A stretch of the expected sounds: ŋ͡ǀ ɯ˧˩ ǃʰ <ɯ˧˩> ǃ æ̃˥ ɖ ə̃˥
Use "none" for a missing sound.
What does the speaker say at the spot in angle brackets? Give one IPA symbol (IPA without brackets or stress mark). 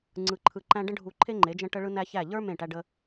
ɯ˧˩